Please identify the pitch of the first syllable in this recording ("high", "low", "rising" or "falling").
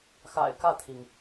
low